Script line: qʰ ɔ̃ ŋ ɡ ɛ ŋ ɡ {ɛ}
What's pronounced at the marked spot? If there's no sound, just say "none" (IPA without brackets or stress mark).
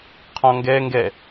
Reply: ɛ